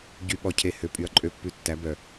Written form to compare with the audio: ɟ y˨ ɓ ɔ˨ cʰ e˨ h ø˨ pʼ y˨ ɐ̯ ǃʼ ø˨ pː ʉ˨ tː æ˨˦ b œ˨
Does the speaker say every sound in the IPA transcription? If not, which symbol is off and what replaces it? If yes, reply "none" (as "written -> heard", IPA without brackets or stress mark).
none